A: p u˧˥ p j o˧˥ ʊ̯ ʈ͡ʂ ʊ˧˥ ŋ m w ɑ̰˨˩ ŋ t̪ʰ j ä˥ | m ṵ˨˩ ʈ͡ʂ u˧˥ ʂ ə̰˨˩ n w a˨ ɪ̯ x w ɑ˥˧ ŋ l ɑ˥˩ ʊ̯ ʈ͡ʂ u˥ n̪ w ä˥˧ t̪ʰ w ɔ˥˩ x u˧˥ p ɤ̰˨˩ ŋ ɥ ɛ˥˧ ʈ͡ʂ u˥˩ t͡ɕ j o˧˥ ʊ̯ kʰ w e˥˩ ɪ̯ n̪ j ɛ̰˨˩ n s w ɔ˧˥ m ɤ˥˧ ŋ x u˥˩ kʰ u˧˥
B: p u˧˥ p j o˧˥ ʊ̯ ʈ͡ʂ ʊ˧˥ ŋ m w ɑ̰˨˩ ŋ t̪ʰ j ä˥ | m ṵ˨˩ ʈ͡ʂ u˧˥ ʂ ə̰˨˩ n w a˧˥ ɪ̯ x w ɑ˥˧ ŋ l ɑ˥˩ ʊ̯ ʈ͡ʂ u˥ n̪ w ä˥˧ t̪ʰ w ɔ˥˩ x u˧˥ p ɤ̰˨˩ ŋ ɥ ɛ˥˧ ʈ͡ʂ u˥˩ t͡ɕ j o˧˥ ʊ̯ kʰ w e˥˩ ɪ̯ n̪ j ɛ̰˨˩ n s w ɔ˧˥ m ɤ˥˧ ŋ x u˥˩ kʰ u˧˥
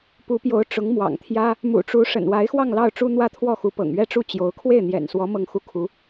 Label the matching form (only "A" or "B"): B